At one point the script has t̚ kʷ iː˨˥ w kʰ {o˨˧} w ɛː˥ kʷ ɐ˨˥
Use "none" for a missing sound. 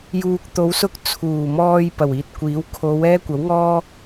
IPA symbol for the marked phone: o˨˧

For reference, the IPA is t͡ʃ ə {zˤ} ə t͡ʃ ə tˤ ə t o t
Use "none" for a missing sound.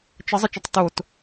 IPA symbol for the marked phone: zˤ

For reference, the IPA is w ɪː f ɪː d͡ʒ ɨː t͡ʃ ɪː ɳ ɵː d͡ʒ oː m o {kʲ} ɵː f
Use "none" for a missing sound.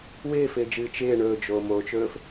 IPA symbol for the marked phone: t͡ʃ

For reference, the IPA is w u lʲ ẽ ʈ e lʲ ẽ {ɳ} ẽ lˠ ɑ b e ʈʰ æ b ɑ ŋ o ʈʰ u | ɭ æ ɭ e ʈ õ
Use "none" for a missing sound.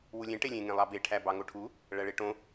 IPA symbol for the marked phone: ŋ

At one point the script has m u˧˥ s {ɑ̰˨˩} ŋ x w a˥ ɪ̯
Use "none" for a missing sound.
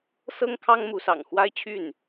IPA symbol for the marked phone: ɑ̰˨˩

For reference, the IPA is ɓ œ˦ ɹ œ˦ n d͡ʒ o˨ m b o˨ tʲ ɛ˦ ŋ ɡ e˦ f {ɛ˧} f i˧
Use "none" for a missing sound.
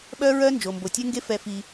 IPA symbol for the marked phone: ɛ˧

